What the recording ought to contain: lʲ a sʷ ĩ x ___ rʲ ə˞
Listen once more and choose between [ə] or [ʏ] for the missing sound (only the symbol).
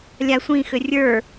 ʏ